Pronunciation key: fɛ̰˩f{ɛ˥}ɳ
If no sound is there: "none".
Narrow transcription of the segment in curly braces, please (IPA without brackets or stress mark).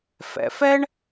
ɛ˥